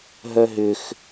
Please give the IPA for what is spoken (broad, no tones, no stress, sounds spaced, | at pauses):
ɦ œ ɦ ʏ x